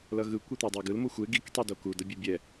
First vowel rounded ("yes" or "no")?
no